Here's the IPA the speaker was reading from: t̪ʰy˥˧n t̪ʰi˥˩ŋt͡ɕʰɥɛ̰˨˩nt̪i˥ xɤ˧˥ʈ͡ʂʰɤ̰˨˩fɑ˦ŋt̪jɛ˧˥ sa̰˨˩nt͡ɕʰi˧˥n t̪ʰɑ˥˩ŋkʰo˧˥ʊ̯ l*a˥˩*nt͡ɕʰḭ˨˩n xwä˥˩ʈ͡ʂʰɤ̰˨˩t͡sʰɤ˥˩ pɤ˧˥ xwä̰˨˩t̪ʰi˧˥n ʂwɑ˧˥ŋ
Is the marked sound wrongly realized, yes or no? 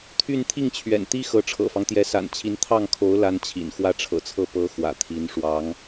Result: yes